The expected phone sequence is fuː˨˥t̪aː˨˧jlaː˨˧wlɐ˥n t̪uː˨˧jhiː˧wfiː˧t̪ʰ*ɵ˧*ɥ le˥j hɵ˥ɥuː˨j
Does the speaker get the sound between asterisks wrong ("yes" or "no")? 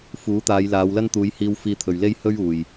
yes